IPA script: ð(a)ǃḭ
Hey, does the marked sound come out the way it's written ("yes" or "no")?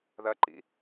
no